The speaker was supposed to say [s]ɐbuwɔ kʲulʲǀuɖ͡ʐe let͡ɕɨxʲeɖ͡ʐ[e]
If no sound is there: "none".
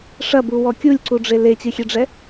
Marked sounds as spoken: ʂ, ɛ

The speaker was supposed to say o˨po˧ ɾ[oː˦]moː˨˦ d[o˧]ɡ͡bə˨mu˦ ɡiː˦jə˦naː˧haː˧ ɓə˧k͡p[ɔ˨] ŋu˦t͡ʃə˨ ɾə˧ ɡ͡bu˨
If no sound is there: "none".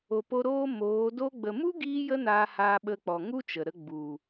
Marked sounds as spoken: oː˦, o˧, ɔ˨

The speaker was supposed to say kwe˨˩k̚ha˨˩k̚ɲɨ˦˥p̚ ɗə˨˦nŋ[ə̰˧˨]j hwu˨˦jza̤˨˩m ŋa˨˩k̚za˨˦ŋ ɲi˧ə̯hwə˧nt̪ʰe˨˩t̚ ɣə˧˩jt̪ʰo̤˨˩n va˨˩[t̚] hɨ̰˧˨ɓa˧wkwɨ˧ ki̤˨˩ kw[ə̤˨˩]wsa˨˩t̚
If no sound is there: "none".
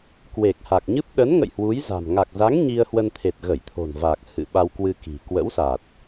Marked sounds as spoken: ə̰˧˨, k̚, ə̰˧˥

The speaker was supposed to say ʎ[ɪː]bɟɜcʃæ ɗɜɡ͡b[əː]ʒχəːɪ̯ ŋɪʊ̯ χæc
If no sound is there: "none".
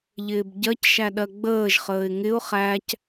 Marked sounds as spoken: ɪː, əː

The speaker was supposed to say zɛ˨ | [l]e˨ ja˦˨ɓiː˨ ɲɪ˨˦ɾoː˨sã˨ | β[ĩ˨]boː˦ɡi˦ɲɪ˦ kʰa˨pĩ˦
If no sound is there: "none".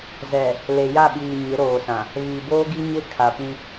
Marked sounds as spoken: l, i˨

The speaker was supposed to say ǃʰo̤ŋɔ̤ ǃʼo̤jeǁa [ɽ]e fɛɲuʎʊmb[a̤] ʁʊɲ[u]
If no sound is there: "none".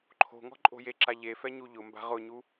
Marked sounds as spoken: ʎ, a̤, u

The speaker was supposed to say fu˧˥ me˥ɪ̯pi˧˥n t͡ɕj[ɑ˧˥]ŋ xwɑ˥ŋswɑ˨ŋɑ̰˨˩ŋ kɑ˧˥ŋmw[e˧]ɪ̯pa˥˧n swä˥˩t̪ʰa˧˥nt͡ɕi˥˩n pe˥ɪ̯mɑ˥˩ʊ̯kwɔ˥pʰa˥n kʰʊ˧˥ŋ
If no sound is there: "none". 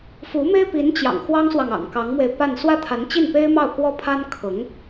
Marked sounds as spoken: ɑ̰˨˩, e˧

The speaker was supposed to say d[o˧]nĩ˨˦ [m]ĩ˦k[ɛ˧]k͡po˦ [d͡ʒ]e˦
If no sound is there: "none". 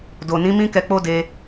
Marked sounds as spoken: o˨, m, ɛ˧, d

